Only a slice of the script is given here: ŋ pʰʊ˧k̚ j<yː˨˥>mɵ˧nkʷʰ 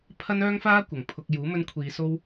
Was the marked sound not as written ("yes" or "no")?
yes